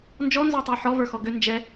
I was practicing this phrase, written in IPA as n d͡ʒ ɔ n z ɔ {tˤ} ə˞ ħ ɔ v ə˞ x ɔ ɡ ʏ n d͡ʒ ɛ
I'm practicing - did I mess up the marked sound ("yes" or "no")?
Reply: no